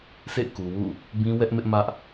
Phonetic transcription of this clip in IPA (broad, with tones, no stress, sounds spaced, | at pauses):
sʰ ḛ˦˨ k u˨ w ṵ˦˨ | b ĩ˦ w ɛ˦ ʔ m ɪ˦ ʔ m ä˦ ʔ